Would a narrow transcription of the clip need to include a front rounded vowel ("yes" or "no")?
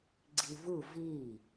no